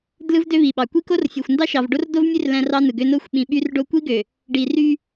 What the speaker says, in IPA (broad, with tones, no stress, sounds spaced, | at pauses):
d l ɯ˦ v d ø˦ β i˨ ɓ ɑ˨ kʷ i˦ k o˦ r fʲ o˨ xʷ n d ɑ˦ ʃ ɑ˨ v ɖ o˦ r d o˦ v mʲ ø˦ r l æ̃˦ r ɑ˦ n ɯ˨ ɡ ø˦ n o˦ xʷ ɓ ĩ˨ ɓ y˦ r ɖ o˦ kʷ i˦ ɡ ø˨ | ɖ i˨ r y˦